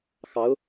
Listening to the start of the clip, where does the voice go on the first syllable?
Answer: rising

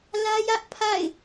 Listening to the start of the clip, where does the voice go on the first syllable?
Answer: high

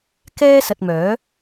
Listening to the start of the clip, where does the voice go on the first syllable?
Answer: high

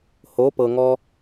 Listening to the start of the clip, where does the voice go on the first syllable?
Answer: rising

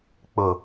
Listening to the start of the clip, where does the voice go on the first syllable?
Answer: low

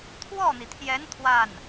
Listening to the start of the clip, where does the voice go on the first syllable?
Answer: falling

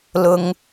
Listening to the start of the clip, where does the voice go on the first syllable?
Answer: low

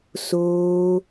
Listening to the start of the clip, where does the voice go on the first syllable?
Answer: high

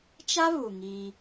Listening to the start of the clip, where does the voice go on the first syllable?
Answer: high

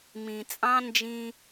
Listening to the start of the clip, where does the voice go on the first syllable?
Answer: low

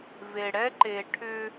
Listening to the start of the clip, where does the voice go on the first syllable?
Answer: low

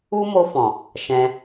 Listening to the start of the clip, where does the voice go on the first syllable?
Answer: high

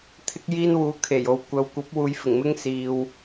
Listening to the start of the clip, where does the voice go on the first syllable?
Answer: high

